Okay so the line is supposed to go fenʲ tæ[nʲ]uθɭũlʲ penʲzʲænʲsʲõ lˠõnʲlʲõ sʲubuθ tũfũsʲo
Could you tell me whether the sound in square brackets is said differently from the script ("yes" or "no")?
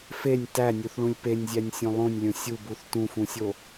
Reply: no